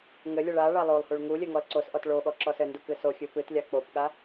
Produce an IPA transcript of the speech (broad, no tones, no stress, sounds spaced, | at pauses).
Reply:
ŋ ɘ lʲ ɘ ɭ a ɭ a lˠ o lˠ h u ɭ ŋ u lʲ ɘ ŋ ɔ l ǀ o s ʔ ɔ t ɭ o ɠ ɔ ǁ ɔ s ɘ n d u k ɨ s o xʲ ɨ p ɨ t lʲ a k͡p o p ɠ a